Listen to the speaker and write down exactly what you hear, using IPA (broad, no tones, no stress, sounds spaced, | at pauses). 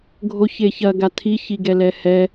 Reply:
ɡʱ o ç e ç ɐ ɡ a tʰ i ç i ɡ ɛ l ɛ h ɛ